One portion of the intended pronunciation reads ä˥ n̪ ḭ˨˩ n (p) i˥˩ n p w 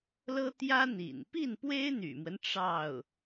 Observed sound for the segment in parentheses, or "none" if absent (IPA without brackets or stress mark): p